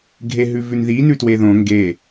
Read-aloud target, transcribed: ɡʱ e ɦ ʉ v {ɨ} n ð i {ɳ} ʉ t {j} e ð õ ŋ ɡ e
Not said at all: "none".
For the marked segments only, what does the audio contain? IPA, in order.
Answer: ʉ, n, w

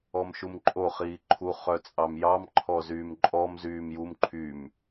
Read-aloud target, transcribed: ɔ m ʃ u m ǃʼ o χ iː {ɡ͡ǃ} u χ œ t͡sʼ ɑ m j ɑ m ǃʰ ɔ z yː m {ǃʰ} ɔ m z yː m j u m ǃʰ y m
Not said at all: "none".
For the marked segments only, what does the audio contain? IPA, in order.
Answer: ǃʰ, ǃʼ

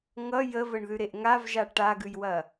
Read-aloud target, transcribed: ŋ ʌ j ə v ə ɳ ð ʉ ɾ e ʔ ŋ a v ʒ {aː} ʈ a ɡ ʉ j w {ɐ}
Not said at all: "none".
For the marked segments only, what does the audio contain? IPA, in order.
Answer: a, ɐ

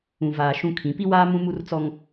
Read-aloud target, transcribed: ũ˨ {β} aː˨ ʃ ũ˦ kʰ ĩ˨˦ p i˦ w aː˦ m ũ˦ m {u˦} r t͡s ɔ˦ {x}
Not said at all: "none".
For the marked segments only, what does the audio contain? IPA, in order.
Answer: v, u˦, ŋ

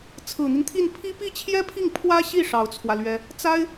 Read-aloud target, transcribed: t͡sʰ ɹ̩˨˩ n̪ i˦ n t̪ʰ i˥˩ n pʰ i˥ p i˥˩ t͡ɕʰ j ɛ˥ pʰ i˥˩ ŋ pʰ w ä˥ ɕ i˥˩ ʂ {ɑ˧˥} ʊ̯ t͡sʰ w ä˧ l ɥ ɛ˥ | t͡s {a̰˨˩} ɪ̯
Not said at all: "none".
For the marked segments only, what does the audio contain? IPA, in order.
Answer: ɑ˧˥, a˥

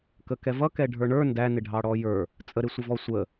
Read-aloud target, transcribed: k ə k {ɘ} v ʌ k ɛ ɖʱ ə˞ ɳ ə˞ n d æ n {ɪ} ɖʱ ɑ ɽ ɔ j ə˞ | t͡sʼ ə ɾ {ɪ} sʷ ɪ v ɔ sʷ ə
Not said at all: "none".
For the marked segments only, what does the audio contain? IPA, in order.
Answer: ɛ, ɪ, ɪ

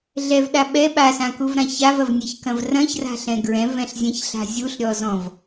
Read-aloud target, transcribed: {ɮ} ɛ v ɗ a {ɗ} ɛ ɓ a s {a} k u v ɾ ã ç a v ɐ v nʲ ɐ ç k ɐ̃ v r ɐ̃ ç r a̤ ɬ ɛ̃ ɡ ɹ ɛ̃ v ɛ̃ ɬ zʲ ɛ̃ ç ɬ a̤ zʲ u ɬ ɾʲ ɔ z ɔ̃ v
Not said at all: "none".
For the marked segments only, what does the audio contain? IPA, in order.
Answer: ɮ, ɓ, ã

